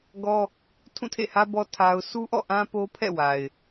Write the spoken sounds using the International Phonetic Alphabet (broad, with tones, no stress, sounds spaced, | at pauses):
ɡ ɔ˦ | tʰ ũ˦˨ tʰ ḛ˦˨ h ä˦ b ɔ˦ tʰ a˦ ʊ̯ s u˦ ʔ ɔ̰˦˨ ʔ ã˦ p o˦ pʰ ɛ̰˦˨ w a˨ ɪ̯